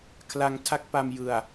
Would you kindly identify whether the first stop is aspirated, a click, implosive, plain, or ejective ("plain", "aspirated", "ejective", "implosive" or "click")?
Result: aspirated